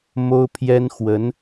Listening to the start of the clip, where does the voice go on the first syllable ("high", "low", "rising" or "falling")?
high